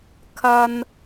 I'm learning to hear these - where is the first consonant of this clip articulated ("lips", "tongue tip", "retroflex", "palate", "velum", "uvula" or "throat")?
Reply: velum